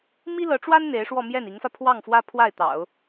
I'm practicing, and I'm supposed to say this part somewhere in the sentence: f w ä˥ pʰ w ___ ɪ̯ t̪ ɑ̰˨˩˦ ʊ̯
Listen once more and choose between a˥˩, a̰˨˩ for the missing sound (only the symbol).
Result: a˥˩